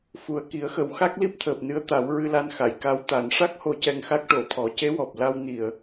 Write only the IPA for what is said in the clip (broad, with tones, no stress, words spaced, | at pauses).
fu˨˩ə̯ki˨˩˦ə̯xə˨˩˦w xa˦˥k̚li˦˥p̚t̪ʰəː˨˩p̚nɨ˧ə̯ t̪a˨˩˦wɹɨ˧la˧nxa˨˩˨j ka˧˥wt̪a˨˩˦n ʂa˦˥k̚ ho˧˥cɛ˧ŋxa˦˥k̚ ʈo˨˩˨ t̪ʰɔ˨˩˦ce˧˥wɔ˨˩p̚ la˧wni˨˩˨ə̯